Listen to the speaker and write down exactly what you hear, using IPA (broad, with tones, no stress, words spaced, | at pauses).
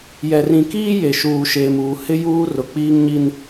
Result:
jɛ˨rĩ˨kiː˦ je˨ʃuː˨ʃeː˨muː˨ hɪ˦juː˦ rʊ˨k͡piː˦ŋɲi˦n